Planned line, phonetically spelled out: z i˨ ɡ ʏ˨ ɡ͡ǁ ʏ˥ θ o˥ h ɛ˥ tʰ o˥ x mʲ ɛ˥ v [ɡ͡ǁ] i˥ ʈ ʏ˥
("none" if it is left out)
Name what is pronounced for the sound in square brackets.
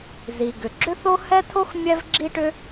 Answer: ɡ͡ǁ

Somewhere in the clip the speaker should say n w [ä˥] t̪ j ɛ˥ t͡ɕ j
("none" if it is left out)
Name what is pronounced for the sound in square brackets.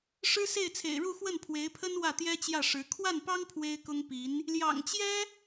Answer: ä˥˩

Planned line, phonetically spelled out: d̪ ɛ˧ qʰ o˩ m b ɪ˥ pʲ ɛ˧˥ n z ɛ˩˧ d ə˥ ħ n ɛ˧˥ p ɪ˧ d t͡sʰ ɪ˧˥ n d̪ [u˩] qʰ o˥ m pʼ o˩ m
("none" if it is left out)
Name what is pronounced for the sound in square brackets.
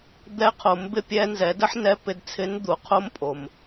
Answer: u˩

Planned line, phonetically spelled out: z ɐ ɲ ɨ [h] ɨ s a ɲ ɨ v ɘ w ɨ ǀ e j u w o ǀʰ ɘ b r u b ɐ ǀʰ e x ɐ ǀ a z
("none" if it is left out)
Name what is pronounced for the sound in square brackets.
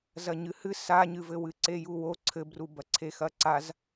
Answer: h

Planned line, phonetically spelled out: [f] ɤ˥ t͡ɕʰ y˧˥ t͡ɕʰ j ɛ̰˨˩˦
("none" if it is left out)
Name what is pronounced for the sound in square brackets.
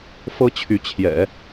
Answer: f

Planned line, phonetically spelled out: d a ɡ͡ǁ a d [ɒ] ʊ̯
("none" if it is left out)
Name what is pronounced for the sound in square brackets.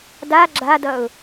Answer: ʌ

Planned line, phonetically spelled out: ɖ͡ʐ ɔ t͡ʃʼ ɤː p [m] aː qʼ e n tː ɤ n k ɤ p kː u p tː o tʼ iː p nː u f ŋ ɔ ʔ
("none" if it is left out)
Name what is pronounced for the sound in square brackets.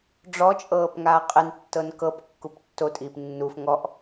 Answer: ŋ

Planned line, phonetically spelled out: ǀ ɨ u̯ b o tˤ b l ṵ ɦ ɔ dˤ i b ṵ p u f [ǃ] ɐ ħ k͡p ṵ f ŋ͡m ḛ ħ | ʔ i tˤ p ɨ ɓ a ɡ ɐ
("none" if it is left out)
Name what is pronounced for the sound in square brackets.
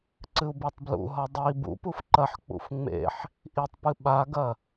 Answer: ǃ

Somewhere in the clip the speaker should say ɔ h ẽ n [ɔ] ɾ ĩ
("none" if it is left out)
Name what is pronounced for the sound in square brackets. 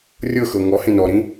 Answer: ɔ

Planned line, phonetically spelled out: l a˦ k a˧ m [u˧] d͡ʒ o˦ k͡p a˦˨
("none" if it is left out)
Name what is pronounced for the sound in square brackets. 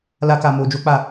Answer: o˧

